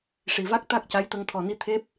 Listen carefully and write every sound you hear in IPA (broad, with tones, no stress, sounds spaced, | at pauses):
ʂ i˨˩ v a˦˥ k̚ t̪ a˦˥ k̚ c a˧˥ j t̪ ə˧ ŋ t̪ʰ ɔ˨˩ n i˧˥ t̪ʰ e˦˥ p̚